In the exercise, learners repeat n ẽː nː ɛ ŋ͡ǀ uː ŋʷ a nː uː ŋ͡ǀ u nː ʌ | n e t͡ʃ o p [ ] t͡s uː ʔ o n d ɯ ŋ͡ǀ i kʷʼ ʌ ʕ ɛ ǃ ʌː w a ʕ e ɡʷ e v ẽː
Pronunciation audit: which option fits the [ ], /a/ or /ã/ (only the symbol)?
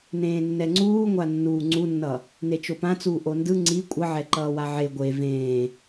ã